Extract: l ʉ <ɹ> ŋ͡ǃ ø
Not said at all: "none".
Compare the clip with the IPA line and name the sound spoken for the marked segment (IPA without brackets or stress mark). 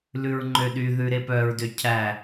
ɹ